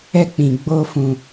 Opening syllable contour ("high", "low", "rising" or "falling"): high